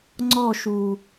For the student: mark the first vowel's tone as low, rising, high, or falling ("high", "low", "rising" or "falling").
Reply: falling